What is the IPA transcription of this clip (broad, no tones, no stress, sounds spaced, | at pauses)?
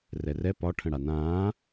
r ɛ r ɛ p ɒ ʈʰ ə̃ ɽ a n ãː